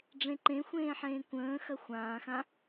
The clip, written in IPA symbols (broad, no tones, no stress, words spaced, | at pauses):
ɖ͡ʐẽǃẽxʷẽːħẽː kʷə̃ː xɐxʷãːxã